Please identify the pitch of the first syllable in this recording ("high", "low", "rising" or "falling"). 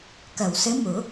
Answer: low